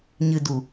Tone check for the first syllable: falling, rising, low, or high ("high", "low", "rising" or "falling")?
low